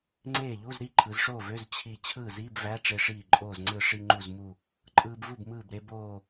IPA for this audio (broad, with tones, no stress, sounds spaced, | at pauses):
ŋ͡ǀ eː˥˩ ʎ u˧˥˧ z ɾ i˥˩ ǃʰ ɯ˩˧ z ʂ oː˥˩ v ø˧˥˧ z t͡ɕʰ i˧˩ t͡ɕʰ ɯː˥˩ z iː˧˥˧ b v æ˧˥˧ ʈ͡ʂ e˧ ʂ iː˧˩ ǃʼ oː˧˩ z ŋ͡ǀ ɯ˧˩ ʂ i˧ ŋ͡ǃ u˧˩ z m u˧˩ | ǃʼ ɯː˧ b v u˥˩ b m ɯː˧˩ b ɾ e˧ b oː˧˩